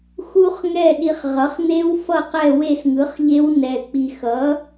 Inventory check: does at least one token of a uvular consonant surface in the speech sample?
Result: yes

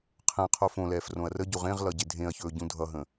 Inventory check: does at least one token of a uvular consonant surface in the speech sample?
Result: yes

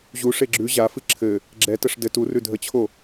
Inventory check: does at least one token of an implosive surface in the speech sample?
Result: no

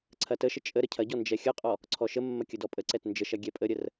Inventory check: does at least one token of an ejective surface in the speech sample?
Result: yes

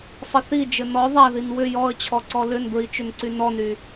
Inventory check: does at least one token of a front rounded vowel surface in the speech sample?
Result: yes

